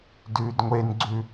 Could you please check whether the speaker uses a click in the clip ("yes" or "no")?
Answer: yes